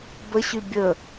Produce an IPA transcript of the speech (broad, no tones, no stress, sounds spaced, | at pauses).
b ə ɕ y bʲ ə